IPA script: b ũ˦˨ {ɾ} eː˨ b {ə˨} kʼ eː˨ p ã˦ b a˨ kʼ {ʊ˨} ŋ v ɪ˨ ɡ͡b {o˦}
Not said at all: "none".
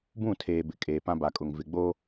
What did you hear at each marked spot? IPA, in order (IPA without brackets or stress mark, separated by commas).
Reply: tʰ, ɪ˨, ʊ˨, o˦